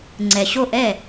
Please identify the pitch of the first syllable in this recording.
low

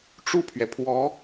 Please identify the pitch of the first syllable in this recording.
falling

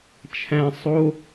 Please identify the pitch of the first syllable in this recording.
high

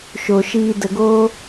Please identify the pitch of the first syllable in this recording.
low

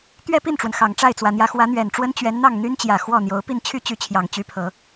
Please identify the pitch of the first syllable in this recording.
falling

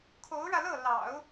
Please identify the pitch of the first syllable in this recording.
rising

